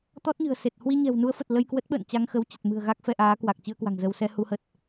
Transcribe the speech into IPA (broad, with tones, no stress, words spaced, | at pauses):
t̪ɔ˦˥t̚ɲɨ̤˨˩ə̯se˨˩t̚ hwi˧ɲɛ̤˨˩wnu˨˦ə̯fə˨˩t̚ lə˧jkwə˦˥t̚ɓə̰ː˧˨n t͡ɕa˧ŋxə˨˦wt͡ɕə˨˩t̚mɨ̤˨˩ə̯ ɣa˦˥k̚ fɛ˧ʔaː˨˦ kwa˨˩k̚ t͡ɕɨ˧ə̯kwa̤˨˩ŋ zə˧w sɛ˧ hu˨˦hə˨˩t̚